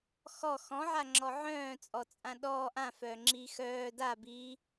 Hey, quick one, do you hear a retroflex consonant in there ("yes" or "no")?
no